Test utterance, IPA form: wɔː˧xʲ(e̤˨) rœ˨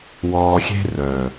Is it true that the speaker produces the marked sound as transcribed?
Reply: no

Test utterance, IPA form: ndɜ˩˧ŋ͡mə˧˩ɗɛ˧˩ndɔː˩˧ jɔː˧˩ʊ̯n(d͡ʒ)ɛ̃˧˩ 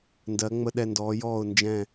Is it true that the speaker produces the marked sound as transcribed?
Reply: yes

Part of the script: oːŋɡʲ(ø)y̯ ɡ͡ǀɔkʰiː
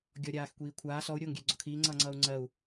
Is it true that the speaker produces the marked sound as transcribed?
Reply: yes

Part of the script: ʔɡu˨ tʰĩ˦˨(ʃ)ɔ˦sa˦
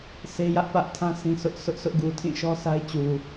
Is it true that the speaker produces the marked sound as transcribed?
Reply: yes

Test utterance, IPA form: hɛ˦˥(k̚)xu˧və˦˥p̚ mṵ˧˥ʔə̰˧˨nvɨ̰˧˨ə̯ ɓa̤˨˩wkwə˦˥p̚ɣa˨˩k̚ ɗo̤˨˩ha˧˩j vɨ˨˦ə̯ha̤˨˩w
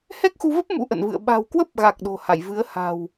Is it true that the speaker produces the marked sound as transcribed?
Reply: yes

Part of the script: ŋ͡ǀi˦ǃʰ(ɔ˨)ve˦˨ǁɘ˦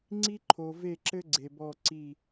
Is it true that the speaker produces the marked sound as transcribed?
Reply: no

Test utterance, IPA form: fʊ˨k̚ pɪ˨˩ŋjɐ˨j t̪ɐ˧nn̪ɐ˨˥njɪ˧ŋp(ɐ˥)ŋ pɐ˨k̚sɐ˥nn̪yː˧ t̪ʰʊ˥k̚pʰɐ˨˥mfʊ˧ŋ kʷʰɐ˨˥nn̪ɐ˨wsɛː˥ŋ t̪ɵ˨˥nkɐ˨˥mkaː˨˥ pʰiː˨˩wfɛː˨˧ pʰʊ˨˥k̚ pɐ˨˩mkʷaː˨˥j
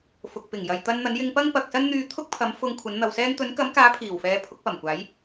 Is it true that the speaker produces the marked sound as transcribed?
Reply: yes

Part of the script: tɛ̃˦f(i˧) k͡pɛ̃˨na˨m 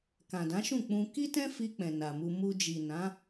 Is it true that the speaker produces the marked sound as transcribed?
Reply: yes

